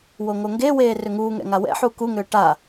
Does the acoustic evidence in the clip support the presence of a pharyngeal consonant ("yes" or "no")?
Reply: yes